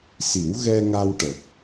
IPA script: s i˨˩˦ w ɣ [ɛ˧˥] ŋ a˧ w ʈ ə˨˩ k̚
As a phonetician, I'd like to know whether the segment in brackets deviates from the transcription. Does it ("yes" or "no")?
yes